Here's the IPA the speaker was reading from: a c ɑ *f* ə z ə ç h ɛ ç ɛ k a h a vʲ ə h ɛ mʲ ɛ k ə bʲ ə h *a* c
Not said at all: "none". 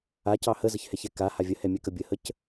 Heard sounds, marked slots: h, ə

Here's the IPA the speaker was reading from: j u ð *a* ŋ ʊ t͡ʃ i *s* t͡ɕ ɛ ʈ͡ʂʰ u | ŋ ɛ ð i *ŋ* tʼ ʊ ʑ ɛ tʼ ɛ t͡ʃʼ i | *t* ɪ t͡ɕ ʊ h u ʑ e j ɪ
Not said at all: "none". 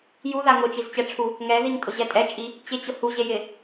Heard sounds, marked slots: a, z, ŋ, t͡ɕ

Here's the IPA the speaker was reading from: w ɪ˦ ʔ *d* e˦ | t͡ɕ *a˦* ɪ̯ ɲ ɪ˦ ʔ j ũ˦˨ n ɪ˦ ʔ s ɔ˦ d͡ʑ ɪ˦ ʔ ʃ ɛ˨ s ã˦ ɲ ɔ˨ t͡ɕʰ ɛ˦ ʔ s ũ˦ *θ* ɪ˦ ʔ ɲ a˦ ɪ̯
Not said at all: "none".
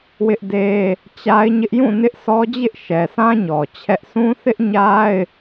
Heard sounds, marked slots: d, a˦, θ

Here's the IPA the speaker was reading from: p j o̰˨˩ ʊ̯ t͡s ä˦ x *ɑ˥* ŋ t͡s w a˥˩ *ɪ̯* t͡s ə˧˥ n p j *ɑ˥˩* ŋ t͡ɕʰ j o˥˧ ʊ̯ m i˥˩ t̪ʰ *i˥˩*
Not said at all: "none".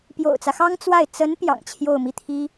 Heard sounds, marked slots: ɑ˥, ɪ̯, ɑ̰˨˩, i˥

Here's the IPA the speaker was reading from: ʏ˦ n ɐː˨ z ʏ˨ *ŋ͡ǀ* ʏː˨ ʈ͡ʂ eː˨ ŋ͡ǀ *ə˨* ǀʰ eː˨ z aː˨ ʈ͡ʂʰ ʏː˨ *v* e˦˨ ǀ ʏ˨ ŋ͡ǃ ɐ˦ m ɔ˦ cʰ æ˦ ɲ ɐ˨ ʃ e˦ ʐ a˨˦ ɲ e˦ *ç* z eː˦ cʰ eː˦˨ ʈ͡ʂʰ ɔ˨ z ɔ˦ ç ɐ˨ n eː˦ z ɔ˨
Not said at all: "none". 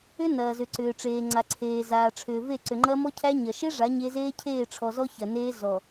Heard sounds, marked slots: ǀ, a˨, v, none

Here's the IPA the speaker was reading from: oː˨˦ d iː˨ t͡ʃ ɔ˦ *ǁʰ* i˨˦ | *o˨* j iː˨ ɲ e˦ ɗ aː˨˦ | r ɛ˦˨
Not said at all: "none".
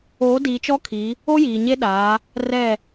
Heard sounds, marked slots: kʰ, o˦

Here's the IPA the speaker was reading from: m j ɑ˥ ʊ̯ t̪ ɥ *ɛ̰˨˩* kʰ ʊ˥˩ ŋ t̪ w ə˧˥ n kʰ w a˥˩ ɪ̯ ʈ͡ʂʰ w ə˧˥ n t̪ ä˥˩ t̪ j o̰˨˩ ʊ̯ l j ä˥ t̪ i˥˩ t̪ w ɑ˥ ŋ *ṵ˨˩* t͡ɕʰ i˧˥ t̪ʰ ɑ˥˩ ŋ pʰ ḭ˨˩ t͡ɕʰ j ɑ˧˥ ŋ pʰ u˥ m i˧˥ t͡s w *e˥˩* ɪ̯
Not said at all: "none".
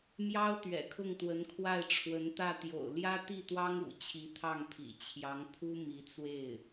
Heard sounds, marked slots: ɛ̰˨˩, ṵ˨˩, e˥˩

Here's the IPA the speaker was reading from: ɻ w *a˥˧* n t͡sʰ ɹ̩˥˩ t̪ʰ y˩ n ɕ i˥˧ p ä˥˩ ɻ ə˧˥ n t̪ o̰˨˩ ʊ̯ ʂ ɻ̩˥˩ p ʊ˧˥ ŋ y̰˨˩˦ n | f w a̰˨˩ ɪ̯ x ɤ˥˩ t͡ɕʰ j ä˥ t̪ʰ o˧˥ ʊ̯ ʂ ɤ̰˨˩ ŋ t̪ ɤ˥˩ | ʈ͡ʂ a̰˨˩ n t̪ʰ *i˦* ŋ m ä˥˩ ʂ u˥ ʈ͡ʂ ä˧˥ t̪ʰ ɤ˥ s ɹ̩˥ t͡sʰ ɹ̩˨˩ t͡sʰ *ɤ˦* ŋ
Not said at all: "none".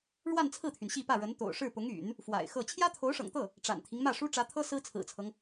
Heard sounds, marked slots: a˥˧, i˦, ɤ˦

